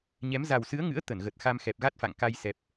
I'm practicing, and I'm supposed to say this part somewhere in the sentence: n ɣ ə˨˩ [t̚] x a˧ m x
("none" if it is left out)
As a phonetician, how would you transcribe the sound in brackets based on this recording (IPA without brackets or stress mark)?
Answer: t̚